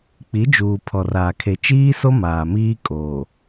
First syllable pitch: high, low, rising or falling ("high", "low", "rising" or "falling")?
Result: rising